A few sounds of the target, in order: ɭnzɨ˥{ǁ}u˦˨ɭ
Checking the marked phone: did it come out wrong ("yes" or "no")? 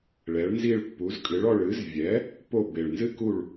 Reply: yes